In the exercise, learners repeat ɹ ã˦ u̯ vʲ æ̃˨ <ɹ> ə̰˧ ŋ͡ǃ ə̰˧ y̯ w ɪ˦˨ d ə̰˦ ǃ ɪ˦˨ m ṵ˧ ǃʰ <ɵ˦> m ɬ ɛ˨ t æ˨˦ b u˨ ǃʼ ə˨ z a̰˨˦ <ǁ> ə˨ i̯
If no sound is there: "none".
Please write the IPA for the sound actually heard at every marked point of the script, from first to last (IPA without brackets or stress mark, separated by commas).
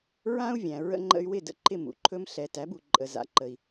ɹ, ɵ˦, ǃ